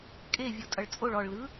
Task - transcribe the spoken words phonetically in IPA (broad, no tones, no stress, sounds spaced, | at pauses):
kʼ e vʲ o tʼ ʌ ɭ t͡sʼ o ɭ ɔ ɭ l ɯ